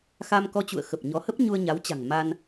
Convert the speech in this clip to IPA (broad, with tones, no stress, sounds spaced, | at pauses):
x a˧ m k ɔ˧ t͡ɕ ṵ˧˨ ə̯ x ə˨˩ p̚ ɲ ɔ˨˦ h ə˦˥ p̚ ɲ u˧ ə̯ ɲ a˨˦ w t͡ɕ a̤˨˩ ŋ m a˧ n